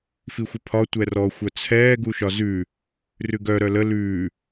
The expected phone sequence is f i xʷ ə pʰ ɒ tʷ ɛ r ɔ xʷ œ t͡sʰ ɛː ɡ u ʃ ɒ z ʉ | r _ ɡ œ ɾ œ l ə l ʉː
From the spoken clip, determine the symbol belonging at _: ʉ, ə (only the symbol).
ʉ